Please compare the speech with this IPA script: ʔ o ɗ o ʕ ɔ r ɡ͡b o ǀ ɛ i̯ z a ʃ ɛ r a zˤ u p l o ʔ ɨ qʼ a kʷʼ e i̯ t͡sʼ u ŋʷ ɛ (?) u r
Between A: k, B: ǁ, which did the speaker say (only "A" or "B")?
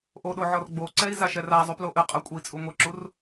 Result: B